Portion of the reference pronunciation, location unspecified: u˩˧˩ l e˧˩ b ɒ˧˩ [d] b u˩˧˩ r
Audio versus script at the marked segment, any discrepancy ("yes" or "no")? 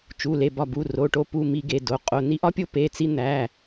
yes